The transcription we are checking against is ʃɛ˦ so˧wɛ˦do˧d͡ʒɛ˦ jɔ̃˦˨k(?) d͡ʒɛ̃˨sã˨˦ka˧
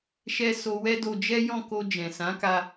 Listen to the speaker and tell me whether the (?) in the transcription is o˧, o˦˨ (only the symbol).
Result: o˧